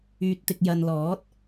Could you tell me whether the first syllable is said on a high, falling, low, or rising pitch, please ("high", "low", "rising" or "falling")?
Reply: low